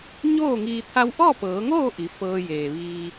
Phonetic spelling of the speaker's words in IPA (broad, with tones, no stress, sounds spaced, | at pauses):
ɲ oː˥˨ ŋ iː˧ t̪ʰ a˧ w ʔ ɔː˥˨ p ɤː˩˧ ŋ oː˥˨ ʔ i˩˧ f ɤː˧ j eː˩ ʋ iː˧